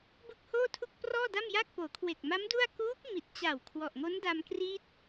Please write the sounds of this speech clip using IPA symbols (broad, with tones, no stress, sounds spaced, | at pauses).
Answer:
b ɯ˥˩ k̚ h oː˥˩ tʰ u˥˩ k̚ p r ɔː˥˩ d a˥˩ m j a˥˩ k̚ p oː˩˦ kʰ w e˨˩ k̚ m a˦˥ m d u˥˩ a̯ k uː˦˥ k̚ m i˨˩ t̚ t͡ɕ a˨˩ w kʰ w ɔ˨˩ ʔ ŋ o˦˥ n d a˧ m k r i˥˩ t̚